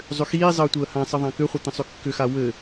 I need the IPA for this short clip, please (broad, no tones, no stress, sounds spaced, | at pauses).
zˤ ʏ x iː zˤ əː tʷ əː h ã sˤ ə ðˤ ã k ʏ χʷ ɘ t̪ ə̃ sˤ ʏ kː ʏ x a w ɘ